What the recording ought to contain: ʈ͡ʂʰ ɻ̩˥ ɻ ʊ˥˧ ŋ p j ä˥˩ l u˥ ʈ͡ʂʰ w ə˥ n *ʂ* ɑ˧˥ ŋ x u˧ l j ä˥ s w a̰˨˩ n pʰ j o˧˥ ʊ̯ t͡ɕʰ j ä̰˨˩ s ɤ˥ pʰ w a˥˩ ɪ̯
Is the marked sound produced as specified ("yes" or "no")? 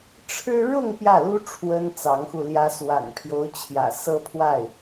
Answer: no